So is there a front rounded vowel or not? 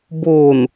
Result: no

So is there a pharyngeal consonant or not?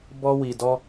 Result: no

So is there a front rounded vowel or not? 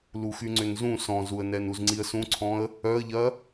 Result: yes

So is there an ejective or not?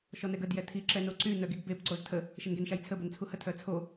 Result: no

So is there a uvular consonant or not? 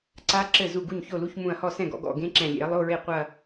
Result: yes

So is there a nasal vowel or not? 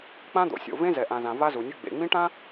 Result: yes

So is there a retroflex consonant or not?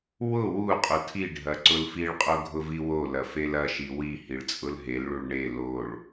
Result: yes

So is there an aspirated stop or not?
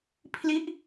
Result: yes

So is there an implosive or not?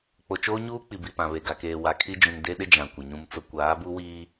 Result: yes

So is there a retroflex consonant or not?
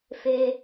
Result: no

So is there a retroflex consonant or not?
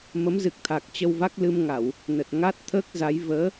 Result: no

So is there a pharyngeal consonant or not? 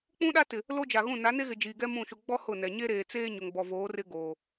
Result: no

